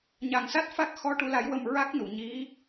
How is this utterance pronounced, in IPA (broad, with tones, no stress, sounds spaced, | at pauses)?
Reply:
ɲ a˨˩ ŋ s a˦˥ t̚ f a˦˥ k̚ x ɔ˧ ʈ u˧ l a˧˥ j w ə˧ m ɹ a˦˥ k̚ n u˨˩˨ ɲ i˧˥